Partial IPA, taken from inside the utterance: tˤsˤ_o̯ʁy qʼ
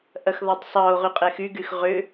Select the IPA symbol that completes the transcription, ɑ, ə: ɑ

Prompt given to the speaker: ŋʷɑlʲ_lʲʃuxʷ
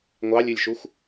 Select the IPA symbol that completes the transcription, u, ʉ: ʉ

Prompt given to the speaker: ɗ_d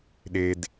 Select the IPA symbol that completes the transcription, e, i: e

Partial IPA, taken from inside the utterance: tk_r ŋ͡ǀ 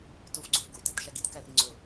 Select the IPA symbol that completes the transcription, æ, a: æ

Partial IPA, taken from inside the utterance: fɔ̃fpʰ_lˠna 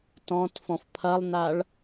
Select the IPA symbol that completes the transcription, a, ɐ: ɐ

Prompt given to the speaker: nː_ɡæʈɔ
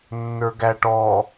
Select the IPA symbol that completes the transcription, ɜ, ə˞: ə˞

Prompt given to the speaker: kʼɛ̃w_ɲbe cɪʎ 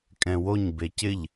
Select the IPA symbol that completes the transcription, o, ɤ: o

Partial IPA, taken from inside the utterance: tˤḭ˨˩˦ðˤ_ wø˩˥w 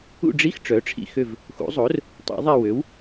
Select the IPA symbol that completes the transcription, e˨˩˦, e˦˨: e˦˨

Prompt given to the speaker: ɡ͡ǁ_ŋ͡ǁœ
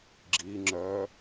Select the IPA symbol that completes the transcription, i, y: i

